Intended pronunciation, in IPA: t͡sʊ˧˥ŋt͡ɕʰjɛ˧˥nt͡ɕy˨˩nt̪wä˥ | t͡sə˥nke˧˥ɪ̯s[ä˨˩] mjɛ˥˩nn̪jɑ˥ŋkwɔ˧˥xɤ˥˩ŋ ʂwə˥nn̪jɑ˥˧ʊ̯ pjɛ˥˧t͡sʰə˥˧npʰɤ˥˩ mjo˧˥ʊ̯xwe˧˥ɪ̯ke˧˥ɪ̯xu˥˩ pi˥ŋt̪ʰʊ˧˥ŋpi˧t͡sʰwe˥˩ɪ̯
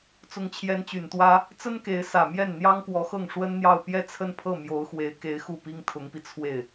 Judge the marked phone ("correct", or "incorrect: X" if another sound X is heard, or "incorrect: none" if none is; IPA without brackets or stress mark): correct